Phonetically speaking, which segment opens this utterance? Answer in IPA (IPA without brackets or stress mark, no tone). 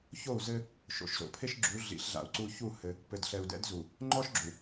ç